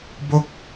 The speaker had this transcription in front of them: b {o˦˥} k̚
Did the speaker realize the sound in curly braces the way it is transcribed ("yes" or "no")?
no